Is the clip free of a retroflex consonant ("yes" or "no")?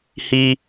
yes